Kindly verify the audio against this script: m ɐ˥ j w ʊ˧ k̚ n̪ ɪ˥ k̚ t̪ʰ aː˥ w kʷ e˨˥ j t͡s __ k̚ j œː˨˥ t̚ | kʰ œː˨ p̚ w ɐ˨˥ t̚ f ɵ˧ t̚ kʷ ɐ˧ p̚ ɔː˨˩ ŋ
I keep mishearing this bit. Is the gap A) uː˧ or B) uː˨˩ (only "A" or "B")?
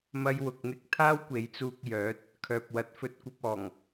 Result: A